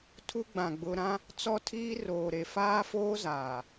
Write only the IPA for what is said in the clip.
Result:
tʰ u˦ ɡ͡b ã˨ ɡ͡b ʊ˦ ɾ ã˦ | t͡s ɔ˦ tʰ iː˦ r oː˨ ɾ e˨ f aː˦ f oː˦ z aː˨

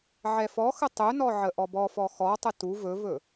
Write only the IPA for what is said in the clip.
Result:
ʕ ɛ f ɔ x ə tˤ ɵ n ɔ ʕ ə ʔ ɔ b ɔ f ɔ x ɔ tˤ ə t u v ɵ v ɵ

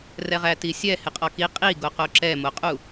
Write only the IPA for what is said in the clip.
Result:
r ɛ ʁ æ t i sʲ ɛ h ɪ qʼ ɔ k i qʼ i ɡ o q o ǁ ɛ m o qʼ u

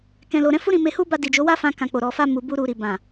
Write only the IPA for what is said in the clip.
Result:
k ɛ̃˨ l o˨ ɾ ɛ̃˨˦ f u˦ ɾ ĩ˧ m e˧ h u˦ b a˧ d i˨ d͡ʒ o˨˦ w a˦ f ã˧ k ã˧ k͡p o˨ ɾ ɔ˨ f a˧ m u˨ b u˧ ɾ u˨ ɾ i˨ b ã˨

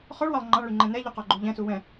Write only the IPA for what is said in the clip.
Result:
χ ɔ ɭ w ɑ lˠ ŋ͡ǃ ɑ̃ ɭ y ŋ͡ǃ ɛ̃ n ɛ ʎ u q ɔ ɡ͡ǃ u ʎ ɛ̃ s u w ɛ̃

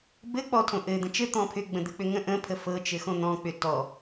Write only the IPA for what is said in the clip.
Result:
b ɘ k͡p ɔ tʰ õ ʔ ɘ d̪ ə̃ t͡ʃ ɘ t̪ ɔ̃ pʰ ʏ ɡ͡b ə̃ d̪ ɘ k͡p ʏ ŋ ə̃ ʔ ə̃ pʰ ə f ɤ t͡ʃ ɘ x õ n̪ ɔ̃ k͡p ʏ t ɔ

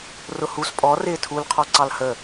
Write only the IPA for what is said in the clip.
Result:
r ʊ h u s pʼ ɔ r ɪː tʰ u l qʰ ɔ ǀ ɑ l h ə

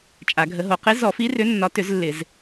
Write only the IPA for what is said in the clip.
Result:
t͡ʃʼ a˨˩˦ ɡʱ ə˨˦ ɦ o˨˦ q ɪ˨˦ z ɔ˨˩˦ f i˨˦ r ʏ˨˦ nː ɒ˨˦ t ʏ˨˩˦ z lː ɪ˨˩˦ z

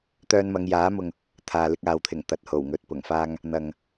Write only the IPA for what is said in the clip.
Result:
t̪ œː˧ n m ɐ˨˧ ŋ j aː˨˥ m ʊ˨ ŋ | t̪ʰ aː˨ l ɪ˧ k̚ aː˨ w t̪ʰ ɪ˨˩ ŋ t̪ ɐ˨ t̚ h o˨˩ w ŋ ɵ˨ t̚ p ʊ˨˩ ŋ f aː˧ ŋ | n̪ ɐ˨ ŋ

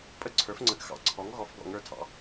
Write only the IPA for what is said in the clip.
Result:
pʼ ə˦ ǀʰ ə˞˩˥ f ŋ͡ǀ ə˩˥ ɡ x ɑ̰˩˥ ǀʰ ɔ˩˥ ŋ ɣ ɔ˩˥ f ɡ ɔ̰˧˩˧ ŋ ə˞˩˧ tʰ ɑ̰˩˥

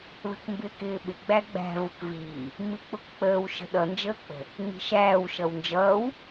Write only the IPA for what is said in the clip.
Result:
ð ə̤ k m b ɪː k ɪː ɓ ɪ ɡ͡b æ ɡ͡b æ̤ v ʊ k v iː | m i k͡p ʊ k k͡p əː w ʃ ə̤ ɗ ʌ n d͡ʒ əː k͡p ə̤ | ŋ͡m i̤ ʃ æː w ʃ ʌ w n d͡ʒ ʌː w

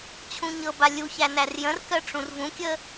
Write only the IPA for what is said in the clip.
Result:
t͡ɕʰ ũ ɲ ɤ b a lʲ u ç æ n æ r j ə̃ r k ɜ ʈ͡ʂ ũ r v ũ kʲ ə

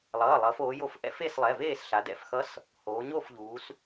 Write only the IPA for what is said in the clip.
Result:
lˠ ʌː˩˧˩ lˠ ʌː˩˧ f oː˩˧ j o˧˩˧ f ʔ ɛ̰˧˥ f e˥˨ s lˠ ɛ˩˧˩ v eː˥˨ s ɬ a˩˧ d ɛ̰˩˧˩ f x ʌ˧˥ s | h oː˩˧ ɲ o˥˨ f ʎ uː˩˧ s

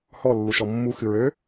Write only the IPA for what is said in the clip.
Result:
h ɔ lː u ʃ ɔ mː u x ɨ ɹ ø

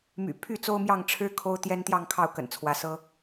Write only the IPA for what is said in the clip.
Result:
m y̰˨˩ pʰ y˥˨ t͡s o˦ ʊ̯ m j ɑ˥˨ ŋ ʈ͡ʂʰ ɻ̩˦ kʰ o˦ ʊ̯ t̪ j ɛ˦ n t̪ j ɑ˥˨ ŋ kʰ ɑ˥˨ ʊ̯ k ə̰˨˩ n t͡sʰ w ä˨˦ s ɤ˦

